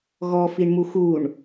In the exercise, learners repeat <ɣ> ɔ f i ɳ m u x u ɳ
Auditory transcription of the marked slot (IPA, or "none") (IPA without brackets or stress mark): ɣ